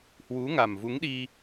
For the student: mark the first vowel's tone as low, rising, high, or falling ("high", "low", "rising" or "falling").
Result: rising